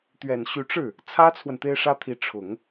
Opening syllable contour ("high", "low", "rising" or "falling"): low